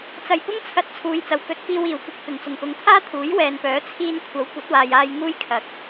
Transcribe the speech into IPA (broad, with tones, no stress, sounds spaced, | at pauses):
t͡s ɐ˨˩ j p ʊ˥ ŋ t͡sʰ ɐ˨˥ t̚ t͡sʰ uː˨˧ j t͡s ɐ˨˩ w k ɵ˨˥ t̚ f iː˧ w iː˨˩ w kʷ ɐ˧ k̚ f ɪ˨˩ ŋ t͡s ʊ˨˩ ŋ p ʊ˨˧ ŋ t̪ʰ aː˥ t̪ʰ uː˨˥ j w ɛː˨ n p œː˨˥ t͡sʰ iː˧ n kʷʰ ɐ˨˥ w kʷ ɐ˨˥ t̚ w aː˨ j aː˧ j ŋ uː˥ j kʰ ɐ˨˥ k̚